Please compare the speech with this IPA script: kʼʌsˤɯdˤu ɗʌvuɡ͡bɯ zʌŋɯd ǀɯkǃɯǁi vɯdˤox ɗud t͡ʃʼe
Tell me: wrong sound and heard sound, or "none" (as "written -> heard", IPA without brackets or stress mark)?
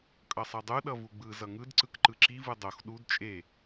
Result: none